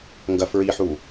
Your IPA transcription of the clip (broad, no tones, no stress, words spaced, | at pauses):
ŋɡɐfɹiħu